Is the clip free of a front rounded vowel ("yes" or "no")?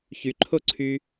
no